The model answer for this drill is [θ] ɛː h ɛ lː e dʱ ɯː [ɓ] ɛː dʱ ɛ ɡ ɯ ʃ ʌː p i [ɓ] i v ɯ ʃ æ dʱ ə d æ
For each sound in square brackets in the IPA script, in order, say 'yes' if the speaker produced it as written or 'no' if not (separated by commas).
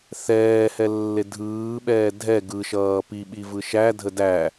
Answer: yes, yes, yes